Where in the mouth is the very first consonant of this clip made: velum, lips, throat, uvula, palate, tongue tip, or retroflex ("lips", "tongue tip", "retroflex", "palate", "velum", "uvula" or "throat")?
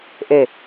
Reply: throat